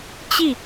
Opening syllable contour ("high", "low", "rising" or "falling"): falling